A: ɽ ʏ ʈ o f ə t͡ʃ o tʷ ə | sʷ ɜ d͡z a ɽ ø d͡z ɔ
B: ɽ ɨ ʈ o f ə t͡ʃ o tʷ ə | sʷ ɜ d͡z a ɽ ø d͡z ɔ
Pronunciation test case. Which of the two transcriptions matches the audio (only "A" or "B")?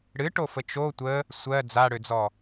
B